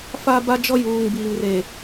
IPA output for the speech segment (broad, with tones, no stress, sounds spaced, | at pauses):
f a˦ b a˦ d͡ʒ ɔ˦ j uː˨ ŋ b iː˨ ŋ r e˨